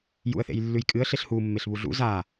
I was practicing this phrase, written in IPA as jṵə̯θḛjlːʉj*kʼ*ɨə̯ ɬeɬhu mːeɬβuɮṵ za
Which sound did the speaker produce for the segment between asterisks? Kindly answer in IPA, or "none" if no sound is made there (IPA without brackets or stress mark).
kʼ